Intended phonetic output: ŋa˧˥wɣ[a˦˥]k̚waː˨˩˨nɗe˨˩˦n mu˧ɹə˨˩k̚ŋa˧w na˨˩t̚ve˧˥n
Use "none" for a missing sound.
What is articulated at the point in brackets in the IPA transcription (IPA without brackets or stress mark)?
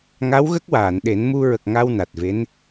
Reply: ə˦˥